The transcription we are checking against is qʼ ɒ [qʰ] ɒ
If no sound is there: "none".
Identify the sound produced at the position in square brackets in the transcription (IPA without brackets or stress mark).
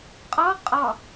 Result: qʼ